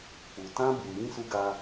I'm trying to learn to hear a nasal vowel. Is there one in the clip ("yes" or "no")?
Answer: yes